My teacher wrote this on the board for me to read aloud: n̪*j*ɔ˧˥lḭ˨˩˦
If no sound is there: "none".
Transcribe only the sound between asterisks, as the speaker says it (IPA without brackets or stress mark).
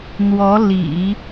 w